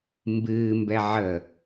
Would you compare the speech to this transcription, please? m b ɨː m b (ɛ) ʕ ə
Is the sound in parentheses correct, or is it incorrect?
correct